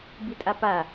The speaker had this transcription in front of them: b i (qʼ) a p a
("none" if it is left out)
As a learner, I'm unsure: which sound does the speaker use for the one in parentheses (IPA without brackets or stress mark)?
tʼ